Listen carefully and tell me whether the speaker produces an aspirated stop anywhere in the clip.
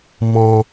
no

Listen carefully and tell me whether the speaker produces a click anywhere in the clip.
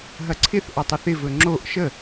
yes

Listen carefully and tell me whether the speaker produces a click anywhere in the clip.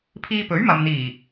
no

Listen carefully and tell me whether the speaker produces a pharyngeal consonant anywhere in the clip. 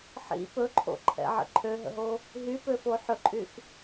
yes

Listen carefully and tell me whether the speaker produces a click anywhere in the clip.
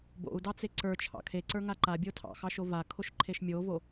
yes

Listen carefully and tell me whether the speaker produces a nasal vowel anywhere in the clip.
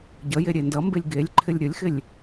no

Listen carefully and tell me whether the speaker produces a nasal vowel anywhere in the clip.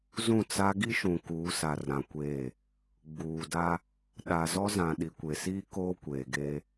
yes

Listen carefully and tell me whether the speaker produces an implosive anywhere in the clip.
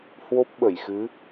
yes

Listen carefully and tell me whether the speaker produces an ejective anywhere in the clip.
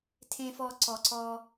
no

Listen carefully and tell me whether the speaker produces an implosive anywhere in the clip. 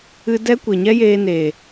no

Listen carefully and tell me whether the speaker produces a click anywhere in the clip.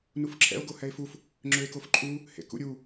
yes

